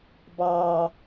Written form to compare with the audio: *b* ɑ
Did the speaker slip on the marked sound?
no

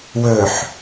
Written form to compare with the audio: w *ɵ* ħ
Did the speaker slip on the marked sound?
no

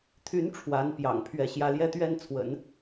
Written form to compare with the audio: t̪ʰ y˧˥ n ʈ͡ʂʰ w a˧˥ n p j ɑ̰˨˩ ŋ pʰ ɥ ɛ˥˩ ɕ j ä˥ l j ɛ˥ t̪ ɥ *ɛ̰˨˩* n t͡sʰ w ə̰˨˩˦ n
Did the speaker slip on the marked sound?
yes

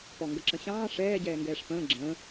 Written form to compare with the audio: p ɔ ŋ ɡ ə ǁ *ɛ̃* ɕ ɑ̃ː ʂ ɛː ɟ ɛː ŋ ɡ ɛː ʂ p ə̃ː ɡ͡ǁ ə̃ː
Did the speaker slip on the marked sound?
yes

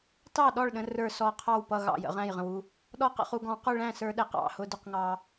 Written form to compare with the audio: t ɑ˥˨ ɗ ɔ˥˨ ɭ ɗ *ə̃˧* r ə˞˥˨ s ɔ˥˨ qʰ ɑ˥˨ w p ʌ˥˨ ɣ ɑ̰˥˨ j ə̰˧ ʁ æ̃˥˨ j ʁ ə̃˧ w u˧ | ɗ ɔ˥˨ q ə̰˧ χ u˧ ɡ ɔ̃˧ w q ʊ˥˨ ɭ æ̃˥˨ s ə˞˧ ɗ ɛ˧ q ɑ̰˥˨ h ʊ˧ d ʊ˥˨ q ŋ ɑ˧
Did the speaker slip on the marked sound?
no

